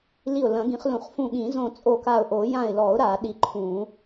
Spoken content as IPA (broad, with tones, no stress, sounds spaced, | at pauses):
l i˧˩ ʊ̯ l ɐ̃˨˩˦ ɡ ĩ˨˩˦ χ l ũ˨˩˦ χ f ũ˧˩ ɠ ĩ˨˩˦ z õ˧˩ t͡sʼ o˧˩ k a˧˩ ʊ̯ ʔ o˨˩˦ j ã˧˩ ɪ̯ l ɔ˨˩˦ ʊ̯ ɾ a˨˩˦ ɗ i˧˩ ǃʰ ũ˨˩˦